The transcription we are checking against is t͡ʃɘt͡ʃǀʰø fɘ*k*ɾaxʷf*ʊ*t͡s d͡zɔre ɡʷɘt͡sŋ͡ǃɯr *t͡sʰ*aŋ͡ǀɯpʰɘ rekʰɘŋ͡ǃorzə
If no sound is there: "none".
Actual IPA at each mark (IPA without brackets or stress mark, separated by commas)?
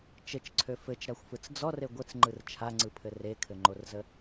t͡ʃ, ɯ, t͡ʃʰ